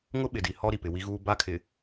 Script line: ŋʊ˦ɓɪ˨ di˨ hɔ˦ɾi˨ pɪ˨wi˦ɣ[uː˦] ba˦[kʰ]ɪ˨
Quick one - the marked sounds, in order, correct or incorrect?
correct, correct

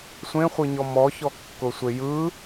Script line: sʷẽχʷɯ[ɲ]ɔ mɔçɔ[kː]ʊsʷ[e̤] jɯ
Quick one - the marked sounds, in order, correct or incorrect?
correct, correct, incorrect: e

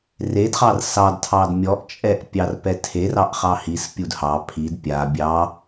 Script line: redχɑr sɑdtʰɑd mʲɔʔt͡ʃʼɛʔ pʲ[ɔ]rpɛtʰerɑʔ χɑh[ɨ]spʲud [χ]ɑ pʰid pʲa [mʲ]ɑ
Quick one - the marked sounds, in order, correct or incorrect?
incorrect: ɑ, incorrect: i, incorrect: h, incorrect: bʲ

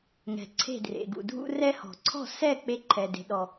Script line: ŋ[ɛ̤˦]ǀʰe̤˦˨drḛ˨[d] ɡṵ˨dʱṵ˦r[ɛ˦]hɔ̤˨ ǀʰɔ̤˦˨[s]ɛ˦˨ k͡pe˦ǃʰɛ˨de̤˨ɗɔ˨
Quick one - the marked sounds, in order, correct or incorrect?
incorrect: ɛ̤˨, incorrect: none, correct, correct

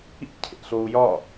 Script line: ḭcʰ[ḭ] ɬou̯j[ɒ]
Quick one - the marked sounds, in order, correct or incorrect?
incorrect: ḛ, correct

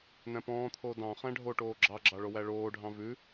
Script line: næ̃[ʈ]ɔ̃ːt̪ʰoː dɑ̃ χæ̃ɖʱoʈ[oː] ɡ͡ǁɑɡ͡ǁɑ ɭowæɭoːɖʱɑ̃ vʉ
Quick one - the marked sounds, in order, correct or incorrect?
incorrect: p, correct

